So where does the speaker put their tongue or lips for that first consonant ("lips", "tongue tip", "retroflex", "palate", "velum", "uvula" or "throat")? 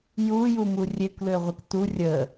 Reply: palate